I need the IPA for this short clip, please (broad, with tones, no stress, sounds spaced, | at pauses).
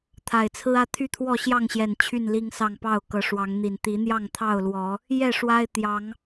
t̪ʰ a˨˩ ɪ̯ t͡sʰ ɹ̩˦ ä˦ t̪ʰ y˥˨ t̪ʰ w ɔ˥˨ ɕ j ɑ˥˨ ŋ ɕ j ɛ˨˩ n t͡ɕʰ y˥˨ n l i˦ ŋ s ɑ˥˨ ŋ p ɑ˥˨ ʊ̯ k ɤ˨˦ ʂ w ɑ˨˦ ŋ n̪ i˨˩ n t̪ i˨˦ n̪ j ɑ˥˨ ŋ t̪ʰ ɑ˥˨ ʊ̯ l w ɔ˨˦ | j ɛ˥˨ ʂ w a˦ ɪ̯ t̪ j ɑ˨˦ ŋ